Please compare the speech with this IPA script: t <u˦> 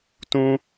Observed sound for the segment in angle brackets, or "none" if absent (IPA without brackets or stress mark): ũ˦